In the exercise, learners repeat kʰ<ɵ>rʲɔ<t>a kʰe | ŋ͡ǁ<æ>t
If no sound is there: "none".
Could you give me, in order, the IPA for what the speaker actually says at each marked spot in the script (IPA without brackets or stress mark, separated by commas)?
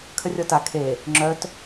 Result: ə, t, œ